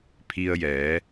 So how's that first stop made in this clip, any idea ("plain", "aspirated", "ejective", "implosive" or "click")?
aspirated